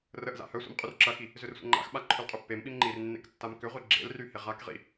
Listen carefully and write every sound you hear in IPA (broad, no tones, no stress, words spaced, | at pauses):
rəʔza̰ hœsʷḭm qʼyrǁɐxi | zʏrsʷə̰ŋ͡ǃa̰xɓa ǃʰʏlqʼʏpːemɓim ŋ͡ǃirnːḛk tːamkʏʁʷi ɡ͡ǁḛlry heʁakʁḭ